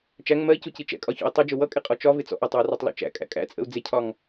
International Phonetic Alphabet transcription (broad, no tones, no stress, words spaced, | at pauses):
t͡ʃæŋ mɜi̯cuci t͡ʃɛ̰kʼɒçɔ̰i̯ tˤʌd͡ʒʊ wʌkʼɪqʼɔ t͡ʃɒvɪt͡sɔ̰ ʔɒtˤwɪrɔtˤlɔ̰ t͡ʃæ̰kʼæ̰ kʼæ̰t͡sʼə̰u̯ d͡zɪcʰɒŋ